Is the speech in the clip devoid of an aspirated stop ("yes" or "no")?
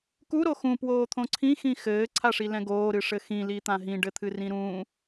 no